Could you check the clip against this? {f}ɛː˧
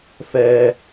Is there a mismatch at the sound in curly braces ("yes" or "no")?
no